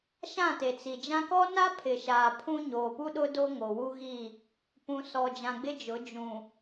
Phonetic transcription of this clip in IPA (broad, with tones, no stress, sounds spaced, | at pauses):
ʃ ã˦˨ t e˨ t͡s i˨ d͡ʒ ã˦ k ɔ˦ n a˦ pʰ ɪ˨ ʃ a˨ pʰ ũ˦ ɲ oː˨ p u˦ ɗ ʊ˦ d o˦ ŋ o˨ w u˦ ɣ i˦˨ | p ũ˨ s ɔ˨ d͡ʒ ã˨ ɡ͡b ɪ˦ d͡ʒ ʊ˨˦ d͡ʒ ũ˨